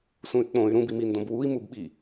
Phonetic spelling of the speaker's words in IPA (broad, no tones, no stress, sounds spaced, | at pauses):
s ũ y̯ k͡p õ y̯ ɾ ũ b i m i n d õ b w u i̯ m u b ɓ i